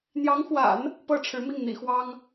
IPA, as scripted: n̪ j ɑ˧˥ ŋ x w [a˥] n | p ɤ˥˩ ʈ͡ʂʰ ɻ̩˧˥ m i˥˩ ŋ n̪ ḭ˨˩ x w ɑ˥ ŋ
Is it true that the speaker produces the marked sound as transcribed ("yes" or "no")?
no